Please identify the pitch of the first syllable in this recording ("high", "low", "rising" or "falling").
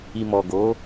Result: low